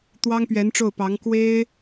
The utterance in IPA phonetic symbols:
t̪ w ɑ˥ ŋ p ɥ ɛ˧˥ n ʈ͡ʂ o˥˩ ʊ̯ p ɑ˧˥ ŋ k w e˥ ɪ̯

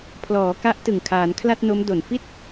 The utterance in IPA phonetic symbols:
pʰ l ɔː˩˦ k a˦˥ ʔ t ɯ˨˩ ŋ kʰ aː˩˦ n kʰ l a˥˩ t̚ n o˦˥ m d o˨˩ n f i˥˩ t̚

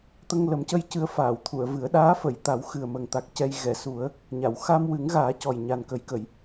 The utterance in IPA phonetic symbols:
t̪ ə˧ ŋ l ə˨˩˦ m c ə˧ j c ɨ˧˥ ə̯ f aː˨˩˨ w t̪ʰ u˨˩˨ ə̯ v ɨ˨˩˦ ə̯ ɗ aː˧˥ f ə˨˩˨ j t̪ a˨˩˦ w x ɨ˨˩ ə̯ m ə˨˩ ŋ t̪ a˨˩ k̚ c ɛ˧ j ɣ ɛ˨˩˨ s u˨˩˦ ə̯ | ɲ a˨˩˨ w x a˧ m w ɨ˨˩˦ ŋ ɣ aː˨˩˦ c ɔ˨˩ j ɲ a˨˩ n k ə˨˩˦ j k ə˨˩˨ j

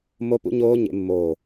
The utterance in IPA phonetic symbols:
m o˦˥ p ṵ˦˥ ɲ oː˦˥ ɲ ḛ˦˥ mː oː˦˨

